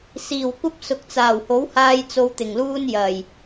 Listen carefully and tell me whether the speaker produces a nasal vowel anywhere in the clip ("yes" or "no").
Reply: no